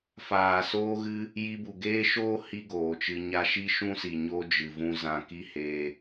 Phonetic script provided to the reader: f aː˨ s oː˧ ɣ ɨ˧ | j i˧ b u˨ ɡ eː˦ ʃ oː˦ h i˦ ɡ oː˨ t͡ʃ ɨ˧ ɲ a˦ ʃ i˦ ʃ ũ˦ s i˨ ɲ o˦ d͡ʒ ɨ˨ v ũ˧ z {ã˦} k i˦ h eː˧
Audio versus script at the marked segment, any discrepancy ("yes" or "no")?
yes